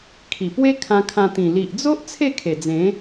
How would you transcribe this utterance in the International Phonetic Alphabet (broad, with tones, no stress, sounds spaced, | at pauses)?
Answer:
kʰ i˨˩ p w e˦ kʰ ã˧ kʰ ã˧ t̪ ĩ˨˩ l i˨ ʔ d͡z o˦ ʔ t͡sʰ e˥˧ kʰ e˨˩ d͡z ẽ˨˦